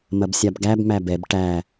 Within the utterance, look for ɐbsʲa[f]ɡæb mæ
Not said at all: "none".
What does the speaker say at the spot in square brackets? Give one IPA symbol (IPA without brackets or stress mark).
b